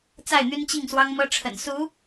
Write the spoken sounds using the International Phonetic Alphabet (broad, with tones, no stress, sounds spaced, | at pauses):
t͡s a˥˩ ɪ̯ n̪ y˥ n t͡ɕ i˥˩ ŋ s w ɑ˥ ŋ m ɤ˥ ʈ͡ʂʰ ə̰˨˩ n s u˧˥